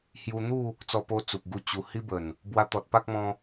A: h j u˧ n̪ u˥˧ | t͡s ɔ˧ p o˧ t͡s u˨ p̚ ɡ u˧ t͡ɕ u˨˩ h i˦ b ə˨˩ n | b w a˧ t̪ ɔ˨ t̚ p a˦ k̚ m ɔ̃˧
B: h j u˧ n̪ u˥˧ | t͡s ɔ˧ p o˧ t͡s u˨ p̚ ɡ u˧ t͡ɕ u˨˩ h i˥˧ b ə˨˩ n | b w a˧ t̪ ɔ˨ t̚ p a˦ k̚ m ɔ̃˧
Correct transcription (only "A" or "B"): A